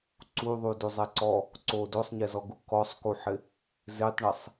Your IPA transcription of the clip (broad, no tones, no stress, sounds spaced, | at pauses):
ǀ u ðˤ u d u zˤ ɛ ǀ ɔ | ǀ o d o sˤ ɲ ɛ z ɔ ɡ u k ɔ sˤ k u ħ ɪ | z e tˤ ɳ e sˤ